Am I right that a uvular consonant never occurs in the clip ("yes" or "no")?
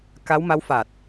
yes